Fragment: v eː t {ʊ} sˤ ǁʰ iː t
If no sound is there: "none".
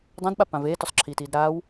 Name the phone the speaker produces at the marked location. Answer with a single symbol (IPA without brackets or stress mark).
ʊ